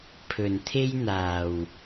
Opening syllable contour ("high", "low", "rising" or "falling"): low